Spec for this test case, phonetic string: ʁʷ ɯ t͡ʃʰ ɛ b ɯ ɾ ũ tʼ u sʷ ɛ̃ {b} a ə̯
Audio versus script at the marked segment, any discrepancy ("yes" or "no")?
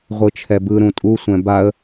no